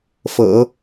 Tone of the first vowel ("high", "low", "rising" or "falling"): low